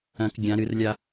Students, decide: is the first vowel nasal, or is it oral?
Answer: nasal